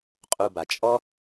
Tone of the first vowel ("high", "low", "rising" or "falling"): low